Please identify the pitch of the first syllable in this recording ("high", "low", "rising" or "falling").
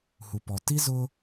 low